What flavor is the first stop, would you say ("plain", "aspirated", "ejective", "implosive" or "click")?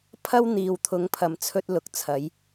aspirated